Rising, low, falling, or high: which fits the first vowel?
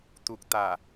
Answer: low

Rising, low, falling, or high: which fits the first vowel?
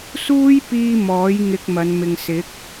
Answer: high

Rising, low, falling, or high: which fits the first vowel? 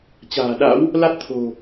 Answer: low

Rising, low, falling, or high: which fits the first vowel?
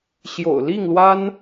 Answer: low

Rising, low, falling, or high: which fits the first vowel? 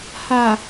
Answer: low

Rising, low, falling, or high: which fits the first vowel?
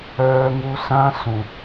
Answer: high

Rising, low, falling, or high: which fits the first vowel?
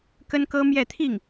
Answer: high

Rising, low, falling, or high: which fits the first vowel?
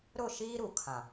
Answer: falling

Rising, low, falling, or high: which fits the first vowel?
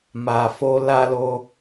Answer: low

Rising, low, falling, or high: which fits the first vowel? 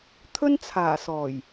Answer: high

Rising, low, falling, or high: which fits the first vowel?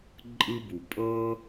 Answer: high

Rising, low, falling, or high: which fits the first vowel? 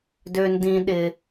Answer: low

